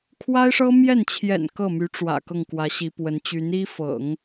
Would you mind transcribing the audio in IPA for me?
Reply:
kʰ w a˥ ɪ̯ ʂ ɤ˥ m j ɛ˥˩ n t͡ɕʰ j ɛ̰˨˩ n k ɤ˥˩ m y˧˥ ʈ͡ʂ w ä̰˨˩ k ɤ˥˩ ŋ k w ä˧˥ ɕ i˧˥ p w ə˧˥ n t͡ɕ y˧˥ n i˥ f ɤ̰˨˩˦ ŋ

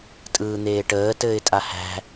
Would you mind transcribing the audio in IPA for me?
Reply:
tʼ ɯː n̪ eː ʈ əː t ɘː ɪ̯ tʼ a h æ̤

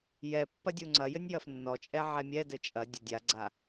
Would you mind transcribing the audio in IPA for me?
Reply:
j ɛ pː ɐ dʲ u ŋ͡ǀ ɐ j ɘ nʲ j ɐ f nː ɔ t͡ʃʼ ɛ ʕ ɛ mʲ ɛ d ɘ t͡ʃʼ ɐ dʲ ɐ dʲ a ɡ͡ǀ a

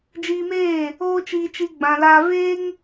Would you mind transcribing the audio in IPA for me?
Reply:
d͡ʒ iː˧ m eː˦˨ | oː˦ t͡ʃ iː˧ t͡ʃ i˧ ɡ͡b ã˧ l aː˦ v eː˦ ŋ

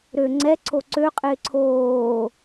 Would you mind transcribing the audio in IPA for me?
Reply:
ɾ ø ŋ͡ǀ ɛ ǀʰ o ǀ ø qʼ ɪː ǀʰ oː

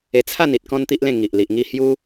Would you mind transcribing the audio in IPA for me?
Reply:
e˧ t͡sʰ a˥˧ n i˨ t̚ k ɔ̃˦ n t̪ i˦ ʔ l ẽ˥˧ ŋ i˨ ʔ l i˨ ʔ ŋ i˥˧ h j u˦

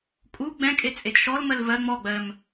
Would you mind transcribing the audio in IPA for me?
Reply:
kʼ u ɡ͡b ɛ̃ kʼ e t͡sʼ e d ʃ ɔ l m ɜ l v ɜ ŋ͡m ɔ ɡ͡b ɜ m

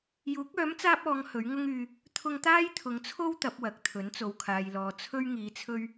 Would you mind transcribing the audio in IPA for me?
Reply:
j uː˨˥ k̚ œː˨˥ m t͡s aː˧ p̚ ɔː˨˧ ŋ h ɵ˨˥ ɥ ŋ ʊ˥ ŋ yː˧ | t̪ʰ ʊ˧ ŋ t̪ aː˥ j t̪ʰ ʊ˨˧ ŋ t͡sʰ o˥ w t̪ ɐ˨˥ p̚ w ɐ˨ k̚ t̪ʰ ɵ˨˥ n t͡s o˨ w kʰ aː˨ j l ɔː˨ t͡sʰ ɵ˥ ɥ ŋ iː˨˧ t͡sʰ ɵ˧ ɥ

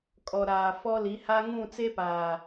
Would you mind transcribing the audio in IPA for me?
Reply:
kʼ ɔ˨ ɾ aː˨ f ɔ˦ l i˨˦ h a˦ ŋ ũ˦˨ t͡s e˦ p aː˨

